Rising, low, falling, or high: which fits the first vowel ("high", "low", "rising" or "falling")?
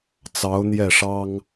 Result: rising